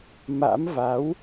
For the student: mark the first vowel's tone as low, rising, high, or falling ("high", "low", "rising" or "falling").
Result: rising